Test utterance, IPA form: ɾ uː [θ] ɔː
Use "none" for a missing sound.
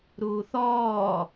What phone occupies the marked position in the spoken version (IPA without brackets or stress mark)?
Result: θ